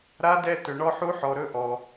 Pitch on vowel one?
rising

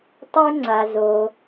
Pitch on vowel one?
high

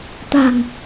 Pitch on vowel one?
low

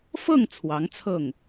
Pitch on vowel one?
falling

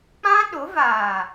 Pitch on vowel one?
high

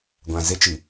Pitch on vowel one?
low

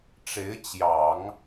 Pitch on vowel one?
rising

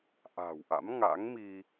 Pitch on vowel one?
low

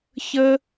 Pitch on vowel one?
high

